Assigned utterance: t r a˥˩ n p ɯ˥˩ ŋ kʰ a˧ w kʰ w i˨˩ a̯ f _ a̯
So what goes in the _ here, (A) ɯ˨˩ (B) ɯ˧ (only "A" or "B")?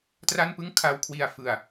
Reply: A